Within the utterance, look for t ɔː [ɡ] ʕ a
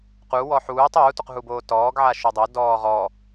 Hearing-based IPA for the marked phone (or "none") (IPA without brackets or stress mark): ɡ